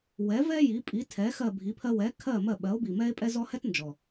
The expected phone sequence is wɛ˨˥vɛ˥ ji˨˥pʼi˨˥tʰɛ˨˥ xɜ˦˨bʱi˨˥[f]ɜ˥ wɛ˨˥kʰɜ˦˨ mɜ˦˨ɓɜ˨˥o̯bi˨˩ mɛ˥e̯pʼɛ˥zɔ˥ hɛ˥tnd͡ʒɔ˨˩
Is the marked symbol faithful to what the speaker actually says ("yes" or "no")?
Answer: no